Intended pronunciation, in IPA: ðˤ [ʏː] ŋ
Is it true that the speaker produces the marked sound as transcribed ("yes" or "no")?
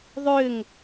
yes